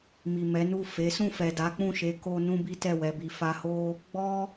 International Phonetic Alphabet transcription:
m i˨ m ɛ˨˦ n u˦˨ f e˨˦ s ũ˦˨ f ɛ˨ d a˨˦ k͡p ũ˦˨ ʃ e˨˦ k o˦ n ũ˦ b i˦ t ɛ˦˨ w ɛ˧ b i˧ f a˧ h o˦ | ɡ͡b ɔ˦

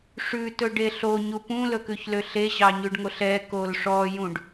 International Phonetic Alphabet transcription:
ʂ ʉ t ɵ ɖ e ɬ o ɲ u p ũ l ɵ k ʉ ç l ø ɬ e ʑ ɑ ɲ ʉ ɖ ŋ o ɬ ɛ k o l ʂ ɔ j ũ ɖ

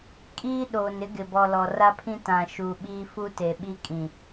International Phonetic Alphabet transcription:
kʼ iː˦ ɗ oː˨ n ɪ˦ ɡ ɪ˨ b ɔ˨ l ɔ˨ r a˦ pʰ ĩ˦ t ã˨ ʃ u˨ ɓ iː˦ f u˦ t e˨ ɓ i˦ kʼ ĩ˨

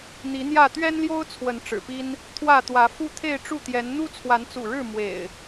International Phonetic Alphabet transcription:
n̪ i˨˦ n̪ j ä˥˨ t̪ ɥ ɛ˦ n l j o˦ ʊ̯ t͡sʰ w ə˨˦ n ʈ͡ʂ ɻ̩˨˩ p i˦ n | t̪ʰ w ä˥˨ t̪ w ä˨˦ f u˦ t̪ʰ e˥˨ ɪ̯ ʈ͡ʂ u˥˨ t̪ j ɛ˨˦ n n̪ u˦ t͡sʰ w a˨˦ n t͡s ṵ˨˩ ɻ ɻ̩˥˨ m w ḛ˨˩ ɪ̯

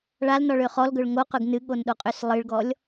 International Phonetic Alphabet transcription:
ɭ a l n ɔ ɭ ø χ ɔ l ɡ ɵ ɭ ŋ o q ɵ ɡ n ɨ ɠ o n ɗ o qʼ ø s lˠ ɨ ɭ ɡ ɔ lʲ

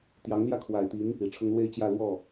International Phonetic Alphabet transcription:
t̪ j ɑ˧˥ ŋ l j ä˥˩ kʰ w a˨˩ ɪ̯ t̪ i˧˥ n | i˨˩ ʈ͡ʂʰ ʊ˥ ŋ l w e˥ ɪ̯ t͡ɕ j ä˥˧ l w ɔ˥˩

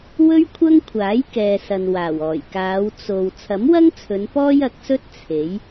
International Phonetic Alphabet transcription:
w ɵ˥ ɥ kʷʰ ɐ˥ ŋ kʷʰ aː˨˥ j k ɛː˨ s ɐ˨ n w aː˨˩ w ɔː˨˩ j k aː˨˧ w t͡s o˨ w t͡sʰ ɐ˨˥ m w ɐ˥ ŋ t͡sʰ ɵ˨˧ n p ɔː˥ j ɐ˨˥ k̚ s ɵ˥ t̚ t͡sʰ e˨˥ j

